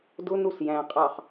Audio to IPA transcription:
d ʊ n u s j æ̃ qʼ ɑ χ

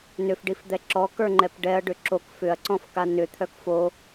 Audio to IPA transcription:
n ʏ f ɖ i f d̪ ɛ ǁ ɔ k ə˞ ŋ͡ǃ ɛ p ɖ ɛ ɐ̯ ɖ ʏ ǁ o k f ʏ ɐ̯ ǀ ɔ̃ f k a n ʏ t̪ʰ œ k f o

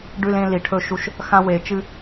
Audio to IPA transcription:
ɖ ʉ˧ l ẽ˧ l i˩˧ ʈʰ ɵ˧ ʃ u˧ ʃ | x ã˧ w e˩˧ t͡ʃ ɨ˧

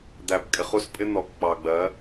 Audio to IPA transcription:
d̪ æ˨ b kʼ ɪ˨ χ u˦ s pʼ ɪ˦ n̪ ɔ˨ k k͡p ɑ˨ ɡ͡b ɜ˨˦

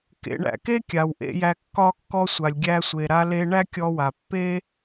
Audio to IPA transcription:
k ḛ˩ ɳ æ̰˩ k e˥ kʲ a˩ w ʔ ḛ˧ j æ˧ kː ɒ˧ kː ɔ˧ sʷ a˩ lʲ ɡʲ æ˧ sʷ e˩ ɾ a˧ l e˧ ɳ æ˥ kʲ ɔ˧ w a˩ pː e˥

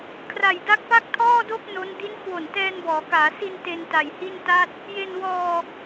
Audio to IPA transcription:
kʰ r a˨˩ j d a˦˥ k̚ p a˥˩ k̚ tʰ ɔː˥˩ d o˥˩ k̚ n o˦˥ n d i˦˥ n kʰ w o˨˩ n t ɛː˧ n b ɔː˩˦ k aː˩˦ s i˧ n t e˧ n t a˨˩ j h i˥˩ n t a˥˩ t̚ | j e˧ n w ɔː˧

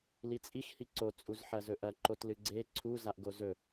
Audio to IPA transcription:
l i t͡sʼ i x h i ǀ o t͡sʼ u z ħ ɐ z ɵ ʔ ɐ ǃ o t l ɨ ɡ͡ǀ e ǀʰ u z a ʔ ɡ o z ɵ

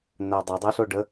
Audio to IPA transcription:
n̪ æ dˤ ə dˤ ɛ ɬ o ɖ ə

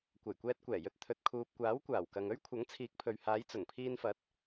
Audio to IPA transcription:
kʷ ɐ˨˩ j kʷ ɛː˧ t̚ kʷ ɛː˨˩ j ɵ˧ t̚ t̪ʰ ɵ˨ t̚ kʰ uː˨ p̚ kʷ aː˨˥ w kʷ aː˨˩ w k ɐ˨ ŋ ɵ˥ ɥ kʷʰ ɐ˨˥ ŋ t͡sʰ iː˨˥ k̚ pʰ ɵ˨ ɥ h aː˨˧ j t͡s ʊ˨˩ ŋ pʰ iː˧ n f ɐ˨˥ t̚

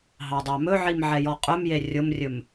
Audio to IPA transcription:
ɦ ɑ dˤ ɑ m ɵ ʕ i m ʕ ɛ j ɔ qʼ ɵ m j e rʲ ʊ m rʲ ɵ m

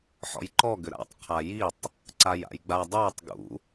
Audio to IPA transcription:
ħ ɔ̰ j ǃ ɔ ɡ ʏ ɾ a̰ tˤ qʰ a j i tˤ | ǀ a j a̰ j ɡ͡b a dˤ ə˞ tˤ ɡ ṵ

